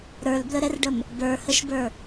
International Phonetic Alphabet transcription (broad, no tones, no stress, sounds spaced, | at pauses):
ɾ ə˞ l b l ə ɾ ɛ r ɖ ə m | b ə˞ h ə ʃ b ə˞